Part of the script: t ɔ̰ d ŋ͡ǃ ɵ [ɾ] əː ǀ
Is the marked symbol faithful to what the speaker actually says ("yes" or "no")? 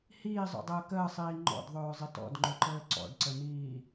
no